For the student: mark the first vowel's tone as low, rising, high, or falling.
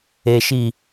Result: low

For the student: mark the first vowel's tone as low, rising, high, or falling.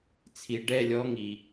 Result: low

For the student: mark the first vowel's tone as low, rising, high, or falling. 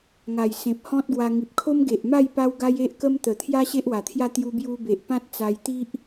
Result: low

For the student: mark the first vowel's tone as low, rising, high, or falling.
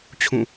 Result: falling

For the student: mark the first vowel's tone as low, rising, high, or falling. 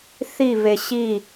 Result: falling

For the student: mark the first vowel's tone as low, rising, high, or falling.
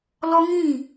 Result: high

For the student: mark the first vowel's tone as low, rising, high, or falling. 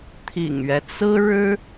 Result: low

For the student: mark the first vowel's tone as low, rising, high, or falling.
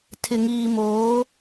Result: low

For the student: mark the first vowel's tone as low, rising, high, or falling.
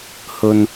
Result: high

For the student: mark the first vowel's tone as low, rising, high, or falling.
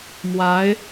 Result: rising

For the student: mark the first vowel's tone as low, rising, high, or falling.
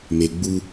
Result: low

